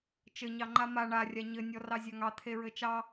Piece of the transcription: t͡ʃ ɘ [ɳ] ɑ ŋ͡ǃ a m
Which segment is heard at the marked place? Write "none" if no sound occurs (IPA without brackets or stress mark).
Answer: ɲ